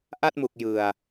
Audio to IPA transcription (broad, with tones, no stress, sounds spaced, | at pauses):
ʔ a˥˩ t̚ m u˨˩ k̚ j ɯ˨˩ a̯